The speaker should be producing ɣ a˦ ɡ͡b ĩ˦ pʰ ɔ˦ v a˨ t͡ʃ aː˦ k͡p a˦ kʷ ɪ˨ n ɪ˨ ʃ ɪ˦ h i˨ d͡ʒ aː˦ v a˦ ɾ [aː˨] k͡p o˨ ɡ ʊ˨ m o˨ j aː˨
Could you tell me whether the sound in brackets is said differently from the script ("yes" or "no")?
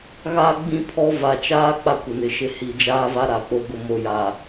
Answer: yes